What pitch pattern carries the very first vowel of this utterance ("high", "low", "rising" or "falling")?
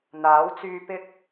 rising